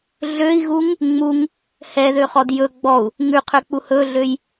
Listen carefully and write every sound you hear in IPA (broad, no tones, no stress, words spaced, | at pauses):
ɮøi̯ɣuŋ | ŋ͡muŋ | hɛðøχɔd jɵ ɡ͡bɔu̯ | ŋʉqʰøk͡pu hɵɮøj